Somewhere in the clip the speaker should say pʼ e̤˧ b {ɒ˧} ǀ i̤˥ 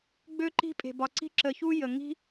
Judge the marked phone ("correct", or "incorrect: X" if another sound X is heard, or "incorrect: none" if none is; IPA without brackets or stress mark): correct